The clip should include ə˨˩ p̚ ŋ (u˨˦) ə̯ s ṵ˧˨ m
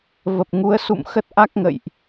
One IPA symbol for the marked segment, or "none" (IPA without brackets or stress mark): u˨˦